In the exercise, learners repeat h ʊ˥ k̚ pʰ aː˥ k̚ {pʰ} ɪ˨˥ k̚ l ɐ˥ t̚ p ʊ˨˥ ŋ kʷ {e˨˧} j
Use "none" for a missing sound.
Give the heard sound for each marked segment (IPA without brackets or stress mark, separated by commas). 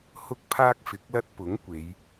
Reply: f, e˨˧